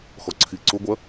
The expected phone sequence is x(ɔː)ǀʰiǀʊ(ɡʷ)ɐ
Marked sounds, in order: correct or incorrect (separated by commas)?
incorrect, correct